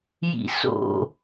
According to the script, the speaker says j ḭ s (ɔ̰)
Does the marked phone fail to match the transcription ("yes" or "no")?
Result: yes